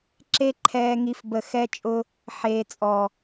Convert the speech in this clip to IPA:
ǁe˦ ǃʰɛː˦ŋi˦fbə˦˨ xɛ˦t͡ʃʼʊ˦ | ħeː˨t͡sʼɔ˨

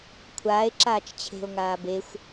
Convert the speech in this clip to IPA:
kʷʰaːe̯ ǁaːt͡ʃt͡ɕʰe̤o̯ ŋaːbexʷ

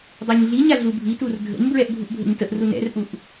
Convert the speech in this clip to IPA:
dˤuɲɮiɲa ɮubʱitur dʱə̰ɲbɹɛʔ bʱuʔbʱə̰ɲtəʔru nɛ̰rʔuʔ

